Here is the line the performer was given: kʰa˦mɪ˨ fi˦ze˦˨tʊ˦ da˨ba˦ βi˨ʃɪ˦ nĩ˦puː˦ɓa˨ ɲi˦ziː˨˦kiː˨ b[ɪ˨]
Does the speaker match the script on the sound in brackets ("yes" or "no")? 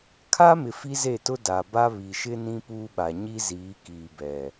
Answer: no